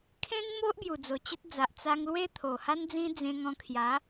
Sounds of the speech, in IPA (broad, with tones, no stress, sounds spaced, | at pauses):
kʰ ẽ˦ ŋ m o˦ ʔ b j u˨˩ d͡z o˨˩ t͡ɕ ə˦ t̚ d͡z a˨ ʔ t͡s a˧ ŋ l w e˦ t̪ʰ o˨˩ h a˦ n d͡z ĩ˦ d͡z ẽ˧ ŋ ɔ̃˧ kʰ j a˨˦